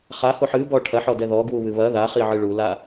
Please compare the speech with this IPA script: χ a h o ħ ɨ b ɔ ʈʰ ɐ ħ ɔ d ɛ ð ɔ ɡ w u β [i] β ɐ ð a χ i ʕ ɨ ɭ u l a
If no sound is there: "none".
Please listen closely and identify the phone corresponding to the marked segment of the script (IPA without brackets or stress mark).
ɨ